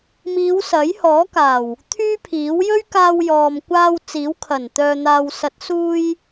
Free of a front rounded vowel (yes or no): no